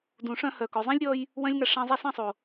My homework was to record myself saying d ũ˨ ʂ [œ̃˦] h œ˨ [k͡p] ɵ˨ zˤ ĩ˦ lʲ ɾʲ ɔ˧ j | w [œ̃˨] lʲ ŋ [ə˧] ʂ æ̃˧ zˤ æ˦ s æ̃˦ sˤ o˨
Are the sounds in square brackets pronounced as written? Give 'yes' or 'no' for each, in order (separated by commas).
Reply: no, no, no, no